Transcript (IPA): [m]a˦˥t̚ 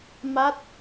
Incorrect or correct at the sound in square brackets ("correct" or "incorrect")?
correct